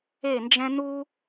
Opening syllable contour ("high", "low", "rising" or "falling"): falling